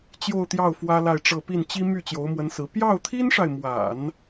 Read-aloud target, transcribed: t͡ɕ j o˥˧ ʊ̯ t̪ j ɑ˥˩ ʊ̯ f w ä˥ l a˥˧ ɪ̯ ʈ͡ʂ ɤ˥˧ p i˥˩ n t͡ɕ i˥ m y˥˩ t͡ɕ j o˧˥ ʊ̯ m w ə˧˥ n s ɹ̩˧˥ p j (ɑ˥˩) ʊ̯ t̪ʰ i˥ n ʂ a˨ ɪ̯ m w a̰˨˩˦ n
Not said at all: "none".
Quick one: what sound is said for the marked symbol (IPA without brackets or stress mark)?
ɑ˥˩